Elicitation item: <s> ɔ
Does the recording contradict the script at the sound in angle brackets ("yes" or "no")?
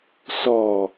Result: no